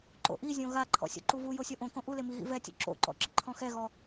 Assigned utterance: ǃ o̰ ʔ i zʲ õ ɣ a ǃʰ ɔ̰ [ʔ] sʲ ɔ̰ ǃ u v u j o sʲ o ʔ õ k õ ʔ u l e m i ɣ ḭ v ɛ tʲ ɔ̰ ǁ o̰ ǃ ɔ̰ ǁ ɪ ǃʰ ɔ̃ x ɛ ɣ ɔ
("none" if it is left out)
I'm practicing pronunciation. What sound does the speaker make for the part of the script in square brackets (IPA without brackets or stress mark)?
none